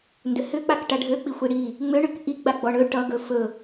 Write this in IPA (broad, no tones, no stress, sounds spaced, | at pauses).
n d ʏ h ʏ k͡p a k ʈ a ɖʱ ø k͡p i xʷ i ɽ i | ŋ͡m ø ɳ ʏ k ʔ i ɡ͡b a ɡ͡b ɔ ɳ ɵ ʈ ʌ ɡ ɵ f ɵ